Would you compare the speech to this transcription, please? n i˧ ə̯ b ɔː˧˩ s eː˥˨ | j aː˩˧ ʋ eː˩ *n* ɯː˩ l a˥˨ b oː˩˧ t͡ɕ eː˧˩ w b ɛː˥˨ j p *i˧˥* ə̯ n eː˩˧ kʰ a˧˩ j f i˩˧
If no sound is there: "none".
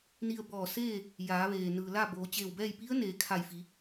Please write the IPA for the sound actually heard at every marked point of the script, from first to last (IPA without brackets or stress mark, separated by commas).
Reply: n, i˧˥